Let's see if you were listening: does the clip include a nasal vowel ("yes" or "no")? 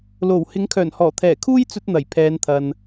no